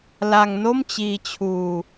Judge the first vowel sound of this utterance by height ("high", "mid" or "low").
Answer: low